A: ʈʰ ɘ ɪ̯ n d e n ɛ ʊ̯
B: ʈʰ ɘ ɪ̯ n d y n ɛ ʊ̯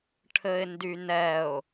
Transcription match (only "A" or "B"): B